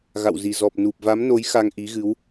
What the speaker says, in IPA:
ɣ a̰˧˨ w z i˨˩ z ɔ˨˩ p̚ n u˨˩ p̚ v a˨˦ m n o˨˦ j x a˧ ŋ ʔ i˨˦ ɣ ɨ˨˦ w

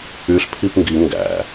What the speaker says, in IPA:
y ɬ pʰ i p ŋ ɡ i ŋ ɡ æ̰

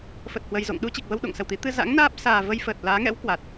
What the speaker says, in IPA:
f ə˨˩ t̚ h w ə˨˩ j z o̰˧˨ ŋ ɗ u˧ t͡ɕ i˨˩ k̚ v ə˧ w ɗ o̰˧˨ ŋ s ə˨˩ w t̪ i˨˦ t̪ ɨ˧ z a̰˧˥ ŋ n aː˦˥ p̚ s aː˨˩ v ə˧ j f əː˨˩ t̚ l aː˨˦ ŋ ɛ̰˧˥ w k w a˨˩ t̚

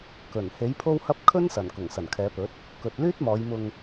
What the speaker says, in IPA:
k ɵ˨˩ n h e˨˥ j pʰ o˥ w h ɐ˥ p̚ kʰ ɵ˥ n s ɐ˨˩ n k ʊ˨˩ ŋ s ɐ˨˩ n kʰ ɛː˨˧ p ɵ˨˥ t̚ | k ɵ˨ t̚ l yː˥ t̚ m ɔː˨˧ j m ʊ˧ ŋ

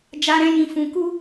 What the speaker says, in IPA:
d͡ʒ a˧ ɾ ɛ̃˧ j ĩ˧ f ũ˧ k u˦

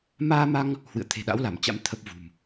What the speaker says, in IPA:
m aː˧ m a˧ ŋ | h w ɨ̰˧˨ ə̯ t̪ʰ e̤˨˩ ɗ a̰˧˥ w l a˧˩ m t͡ɕ a̰˧˥ m t̪ʰ ə˦˥ p̚ v ṳ˨˩ m

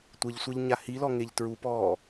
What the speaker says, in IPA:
tʷ ə ʎ sʷ ɐ ʎ ɲ a h i l ɔ ŋ e ʎ t ɹ u p ɔː

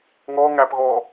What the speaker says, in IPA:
ŋ ɔː ŋ æ p ɣ ɔː

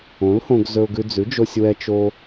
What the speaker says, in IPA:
õ˩˥ l h õ˧ ɡ z ɵ˧ ʊ̯ ɡ ʉ˧ d͡z ʉ˩˥ d͡ʒ o˧ sʲ w ɛ˧ t͡ʃ o˧

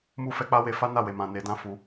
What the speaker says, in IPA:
m u˦ f ɛ˧ k͡p a˦ w e˧ f a˦ n a˦˨ w e˨ m ã˨ n e˨˦ d ã˦ f u˧

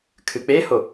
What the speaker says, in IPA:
kʰ ɨ k͡p e h o

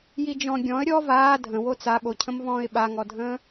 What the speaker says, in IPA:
j i d͡ʒ ɔ̃ ɡʲ ɔ̃ ə̯ ɾʲ ɔ v aː dʱ ə̃ w o t͡s a ɓ o cʰ ə̃ m v ɔ̃ː ɪ̯ ɓ a ŋ ɔ dʱ ə̃ː

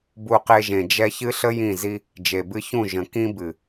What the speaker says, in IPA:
b u˧ q e˧ ʒ ẽ˨ d͡ʒ ɛ˧ ç ɨ˦ ɬ ə˦ j ĩ˦˨ z i˦ | d͡ʒ e˨ b ɨ˧ ç ũ˦˨ ʒ ə̃˨ k ĩ˦ b ɨ˨

